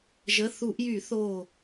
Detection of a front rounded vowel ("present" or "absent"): present